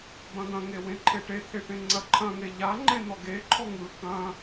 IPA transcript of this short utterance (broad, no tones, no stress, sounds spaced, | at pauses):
b ɐ̃ ɡ ɐ̃ ŋ e w ẽ ǃʰ e ʈ e t̪ʰ e ʈ ẽ ŋ͡ǀ ɐ ǃʰ ɐ̃ ŋ e ʎ a ŋ͡ǃ ẽ n̪ ɔ ɡ e ǃʰ ɔ ŋ ɯ k ɐ̃